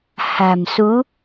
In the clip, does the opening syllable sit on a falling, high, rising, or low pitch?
low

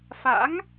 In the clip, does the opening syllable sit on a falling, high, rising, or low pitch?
rising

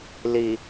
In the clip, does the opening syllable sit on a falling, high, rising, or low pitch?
low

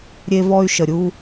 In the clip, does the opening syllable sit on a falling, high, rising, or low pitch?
high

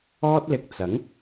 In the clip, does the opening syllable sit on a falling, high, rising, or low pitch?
high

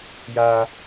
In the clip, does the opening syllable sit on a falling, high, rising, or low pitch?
high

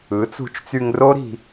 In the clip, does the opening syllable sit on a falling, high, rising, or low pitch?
rising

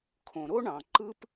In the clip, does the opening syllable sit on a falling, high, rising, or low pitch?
low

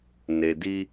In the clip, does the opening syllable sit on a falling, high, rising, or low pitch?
low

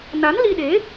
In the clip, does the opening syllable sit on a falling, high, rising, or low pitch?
rising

